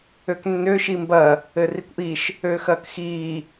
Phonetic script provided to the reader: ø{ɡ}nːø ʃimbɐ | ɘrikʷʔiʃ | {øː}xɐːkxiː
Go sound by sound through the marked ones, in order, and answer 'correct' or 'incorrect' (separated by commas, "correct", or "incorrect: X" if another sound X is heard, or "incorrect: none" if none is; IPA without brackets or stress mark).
incorrect: k, correct